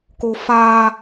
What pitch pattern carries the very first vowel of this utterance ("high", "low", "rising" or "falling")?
high